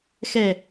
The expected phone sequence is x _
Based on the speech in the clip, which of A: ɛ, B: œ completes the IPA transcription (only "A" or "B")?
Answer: A